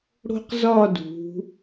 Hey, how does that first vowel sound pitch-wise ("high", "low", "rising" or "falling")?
high